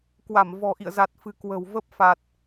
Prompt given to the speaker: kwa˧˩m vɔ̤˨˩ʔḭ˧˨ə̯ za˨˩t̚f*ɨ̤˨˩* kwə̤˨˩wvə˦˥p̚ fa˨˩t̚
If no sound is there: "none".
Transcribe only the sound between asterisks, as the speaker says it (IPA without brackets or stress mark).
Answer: ɨ̤˨˩